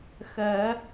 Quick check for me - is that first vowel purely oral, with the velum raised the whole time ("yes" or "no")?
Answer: yes